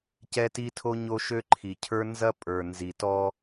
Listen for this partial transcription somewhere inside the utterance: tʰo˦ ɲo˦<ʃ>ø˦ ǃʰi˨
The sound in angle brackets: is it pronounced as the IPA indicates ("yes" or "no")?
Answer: yes